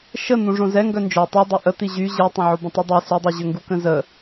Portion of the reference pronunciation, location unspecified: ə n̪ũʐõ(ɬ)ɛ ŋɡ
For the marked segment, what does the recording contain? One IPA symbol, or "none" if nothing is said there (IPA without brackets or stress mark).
z